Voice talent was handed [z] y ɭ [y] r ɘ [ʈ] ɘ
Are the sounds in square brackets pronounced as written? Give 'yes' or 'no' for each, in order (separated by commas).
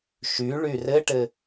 no, yes, yes